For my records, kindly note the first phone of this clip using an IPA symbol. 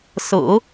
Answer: s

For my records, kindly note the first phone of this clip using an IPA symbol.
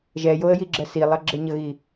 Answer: ʒ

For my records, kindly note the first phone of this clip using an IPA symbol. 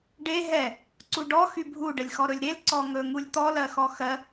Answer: ɖ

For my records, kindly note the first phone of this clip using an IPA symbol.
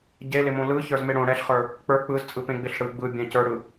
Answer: ɟ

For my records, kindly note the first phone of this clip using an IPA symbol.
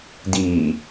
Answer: d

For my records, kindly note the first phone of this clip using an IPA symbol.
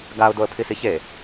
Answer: ɡ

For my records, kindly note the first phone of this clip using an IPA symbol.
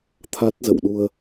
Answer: t̪ʰ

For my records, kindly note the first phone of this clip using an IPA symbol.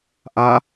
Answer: ʔ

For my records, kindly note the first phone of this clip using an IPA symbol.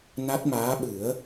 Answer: n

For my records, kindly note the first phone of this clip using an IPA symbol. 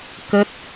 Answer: k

